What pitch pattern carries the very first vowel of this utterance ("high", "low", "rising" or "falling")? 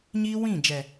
high